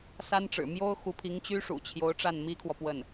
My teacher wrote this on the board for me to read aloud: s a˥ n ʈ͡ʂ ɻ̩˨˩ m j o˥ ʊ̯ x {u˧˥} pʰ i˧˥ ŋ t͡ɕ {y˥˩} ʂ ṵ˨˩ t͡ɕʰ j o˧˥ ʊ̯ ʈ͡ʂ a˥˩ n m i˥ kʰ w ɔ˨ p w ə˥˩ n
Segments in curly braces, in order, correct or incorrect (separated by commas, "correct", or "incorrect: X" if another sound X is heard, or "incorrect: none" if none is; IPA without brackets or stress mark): correct, incorrect: y˥